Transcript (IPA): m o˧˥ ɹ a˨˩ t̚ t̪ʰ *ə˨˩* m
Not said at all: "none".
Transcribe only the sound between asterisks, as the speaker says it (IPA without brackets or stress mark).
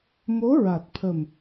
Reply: ə˨˩